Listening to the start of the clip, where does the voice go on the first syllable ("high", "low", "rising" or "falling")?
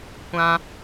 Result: high